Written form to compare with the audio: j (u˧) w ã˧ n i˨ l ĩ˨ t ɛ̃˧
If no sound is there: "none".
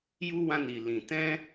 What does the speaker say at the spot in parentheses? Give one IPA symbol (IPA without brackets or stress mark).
u˧